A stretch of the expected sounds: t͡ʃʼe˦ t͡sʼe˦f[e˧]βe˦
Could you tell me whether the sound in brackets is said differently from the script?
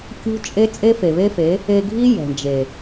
yes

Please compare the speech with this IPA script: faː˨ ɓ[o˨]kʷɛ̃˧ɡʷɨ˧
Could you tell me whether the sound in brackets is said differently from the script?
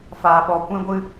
yes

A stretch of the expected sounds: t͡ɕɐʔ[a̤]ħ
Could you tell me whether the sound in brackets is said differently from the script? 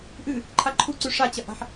no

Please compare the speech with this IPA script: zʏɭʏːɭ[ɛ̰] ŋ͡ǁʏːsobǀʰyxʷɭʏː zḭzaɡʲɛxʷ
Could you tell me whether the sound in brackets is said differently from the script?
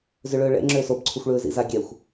no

